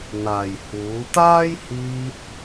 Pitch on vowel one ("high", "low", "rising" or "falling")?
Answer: low